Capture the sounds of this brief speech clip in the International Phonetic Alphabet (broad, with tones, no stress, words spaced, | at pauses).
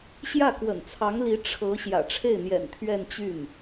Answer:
ɕjä˥˩kwə̰˨˩nt͡sʰɑ˧˥ŋli˧˥ ʈ͡ʂʰɤ˧˥ ɕjä̰˨˩ʈ͡ʂʰe˥˩ɪ̯n̪jɛ̰˨˩n t̪ʰɥɛ˥˧nt͡ɕy˥˩n